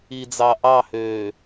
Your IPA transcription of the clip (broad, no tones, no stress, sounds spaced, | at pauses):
i d͡z ɑ ʔ ɑ h øː